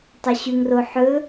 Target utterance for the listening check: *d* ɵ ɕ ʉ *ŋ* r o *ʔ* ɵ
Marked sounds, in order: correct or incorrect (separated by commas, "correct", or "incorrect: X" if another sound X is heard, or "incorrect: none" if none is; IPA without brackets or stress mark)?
incorrect: tˤ, correct, incorrect: ħ